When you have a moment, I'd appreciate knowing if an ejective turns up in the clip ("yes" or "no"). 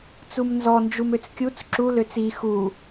no